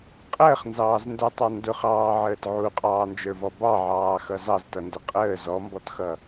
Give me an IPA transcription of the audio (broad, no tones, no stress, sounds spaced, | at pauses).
qʼ əː χ n z ɑː z n d ə˞ tˤ ɑ n d ʊ χ ɑː ʕ əː t ʕ u qʼ ɑː n d͡ʒ ə˞ v ɔ b ɑ ʕ ɑː x ʌ z ɑ z t ʌ n d ɪ qʼ əː z ɔ m b ɔ t x ʌ